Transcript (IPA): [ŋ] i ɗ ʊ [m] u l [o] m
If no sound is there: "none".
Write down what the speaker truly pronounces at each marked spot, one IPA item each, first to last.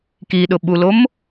k, ɓ, o

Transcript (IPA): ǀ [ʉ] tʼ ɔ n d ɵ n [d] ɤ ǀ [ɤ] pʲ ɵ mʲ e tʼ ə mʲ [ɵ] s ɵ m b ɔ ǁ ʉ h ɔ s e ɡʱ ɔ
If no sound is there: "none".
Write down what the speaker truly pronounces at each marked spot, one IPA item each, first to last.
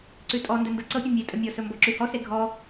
ʉ, d, ɤ, ɤ

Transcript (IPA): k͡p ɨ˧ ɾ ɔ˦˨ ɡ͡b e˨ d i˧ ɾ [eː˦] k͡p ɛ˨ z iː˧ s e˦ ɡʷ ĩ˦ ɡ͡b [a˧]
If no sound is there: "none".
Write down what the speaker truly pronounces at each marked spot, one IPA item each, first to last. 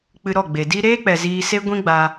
eː˦, a˧

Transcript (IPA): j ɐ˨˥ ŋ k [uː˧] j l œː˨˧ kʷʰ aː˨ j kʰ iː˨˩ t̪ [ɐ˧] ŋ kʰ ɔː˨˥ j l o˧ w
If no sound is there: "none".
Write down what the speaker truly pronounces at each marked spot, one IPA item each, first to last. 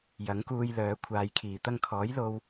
uː˧, ɐ˧

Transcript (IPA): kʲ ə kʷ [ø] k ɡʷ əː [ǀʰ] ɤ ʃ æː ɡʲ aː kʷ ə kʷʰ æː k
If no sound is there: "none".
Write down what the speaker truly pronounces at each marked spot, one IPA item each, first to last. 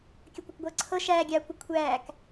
ɘ, ǀʰ

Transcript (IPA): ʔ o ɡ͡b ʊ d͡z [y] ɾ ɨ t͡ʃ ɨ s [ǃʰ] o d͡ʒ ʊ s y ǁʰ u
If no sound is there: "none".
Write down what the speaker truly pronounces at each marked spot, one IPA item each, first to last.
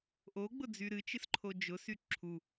y, ǃʰ

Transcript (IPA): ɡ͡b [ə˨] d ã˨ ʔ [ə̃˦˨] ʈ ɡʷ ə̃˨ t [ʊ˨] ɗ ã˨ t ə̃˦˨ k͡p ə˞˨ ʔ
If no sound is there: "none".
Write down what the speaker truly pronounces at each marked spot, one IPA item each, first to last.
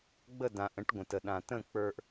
ə˦˨, ə̃˨˦, ə˨

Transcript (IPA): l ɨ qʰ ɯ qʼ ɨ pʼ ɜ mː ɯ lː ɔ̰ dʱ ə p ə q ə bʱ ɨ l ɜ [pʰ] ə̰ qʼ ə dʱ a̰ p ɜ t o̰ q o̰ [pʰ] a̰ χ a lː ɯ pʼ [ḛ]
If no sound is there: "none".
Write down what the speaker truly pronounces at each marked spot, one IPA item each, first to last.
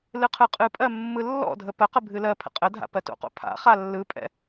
pʰ, pʰ, ɛ̰

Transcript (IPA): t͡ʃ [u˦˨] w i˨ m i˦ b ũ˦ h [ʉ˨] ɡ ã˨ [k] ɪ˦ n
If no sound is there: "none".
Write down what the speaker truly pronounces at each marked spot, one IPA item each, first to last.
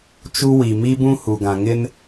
u˦, u˨, ŋ

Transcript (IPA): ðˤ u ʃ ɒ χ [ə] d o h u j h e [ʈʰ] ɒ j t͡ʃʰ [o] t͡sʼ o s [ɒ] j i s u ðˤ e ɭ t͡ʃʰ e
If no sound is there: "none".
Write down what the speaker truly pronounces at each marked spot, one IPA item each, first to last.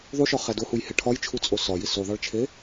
æ, ʈʰ, u, ɒ

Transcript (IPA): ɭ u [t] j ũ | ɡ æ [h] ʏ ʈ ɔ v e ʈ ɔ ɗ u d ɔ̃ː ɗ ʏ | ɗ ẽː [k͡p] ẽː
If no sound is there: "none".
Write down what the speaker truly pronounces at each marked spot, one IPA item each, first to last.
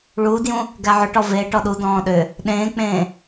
d, ʕ, k͡p

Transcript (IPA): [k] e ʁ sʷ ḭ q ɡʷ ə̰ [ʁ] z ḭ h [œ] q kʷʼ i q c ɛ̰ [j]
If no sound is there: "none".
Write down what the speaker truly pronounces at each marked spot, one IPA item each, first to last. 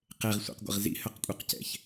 q, ʁ, œ, ç

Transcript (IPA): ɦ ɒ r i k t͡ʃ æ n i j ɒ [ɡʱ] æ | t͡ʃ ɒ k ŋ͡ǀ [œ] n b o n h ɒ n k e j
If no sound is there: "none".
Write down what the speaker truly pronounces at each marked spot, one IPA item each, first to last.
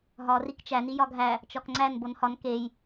ɡʱ, æ

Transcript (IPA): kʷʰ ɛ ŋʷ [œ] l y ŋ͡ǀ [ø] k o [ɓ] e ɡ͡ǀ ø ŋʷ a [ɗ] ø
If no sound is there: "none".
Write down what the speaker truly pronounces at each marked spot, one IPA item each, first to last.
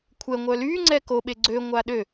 œ, ɛ, ɓ, ɗ

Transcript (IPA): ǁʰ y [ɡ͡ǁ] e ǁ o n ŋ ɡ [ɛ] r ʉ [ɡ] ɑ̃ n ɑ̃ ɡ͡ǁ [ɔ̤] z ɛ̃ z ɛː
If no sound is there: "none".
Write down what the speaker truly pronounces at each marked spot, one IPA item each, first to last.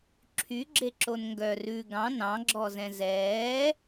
ɡ͡ǁ, œ, ɡ, ɔ

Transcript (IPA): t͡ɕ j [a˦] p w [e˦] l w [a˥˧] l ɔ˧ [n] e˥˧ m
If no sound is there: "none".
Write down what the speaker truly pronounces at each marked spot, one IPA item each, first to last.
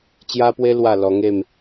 a˦, e˦, a˥˧, ŋ

